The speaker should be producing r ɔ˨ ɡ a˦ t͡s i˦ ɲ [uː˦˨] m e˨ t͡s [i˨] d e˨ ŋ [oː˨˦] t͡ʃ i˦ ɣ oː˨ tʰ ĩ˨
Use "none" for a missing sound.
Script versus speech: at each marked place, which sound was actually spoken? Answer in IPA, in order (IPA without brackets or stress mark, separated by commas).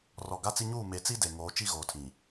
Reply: uː˦˨, i˦, oː˨˦